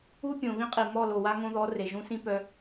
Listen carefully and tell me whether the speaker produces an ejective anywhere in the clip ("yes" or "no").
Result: yes